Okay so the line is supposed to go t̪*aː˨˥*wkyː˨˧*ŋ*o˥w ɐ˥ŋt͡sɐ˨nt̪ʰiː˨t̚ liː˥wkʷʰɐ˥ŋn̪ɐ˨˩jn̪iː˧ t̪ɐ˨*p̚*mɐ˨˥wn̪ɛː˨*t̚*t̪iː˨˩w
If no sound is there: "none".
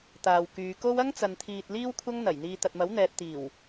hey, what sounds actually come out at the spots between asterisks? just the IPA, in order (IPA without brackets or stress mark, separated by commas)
aː˨, k, t̚, t̚